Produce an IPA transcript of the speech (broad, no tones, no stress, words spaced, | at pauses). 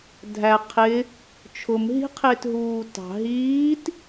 dʱæ qʰɪ | t͡ʃʰʊm ɦi̤qʰɪːtɦuː tɑ̤ ɦiːt